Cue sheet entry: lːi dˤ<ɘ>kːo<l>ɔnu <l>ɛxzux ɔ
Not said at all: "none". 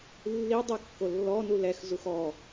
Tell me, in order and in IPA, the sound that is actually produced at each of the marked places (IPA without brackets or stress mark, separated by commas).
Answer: ɛ, lː, l